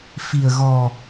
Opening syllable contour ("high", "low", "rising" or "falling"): low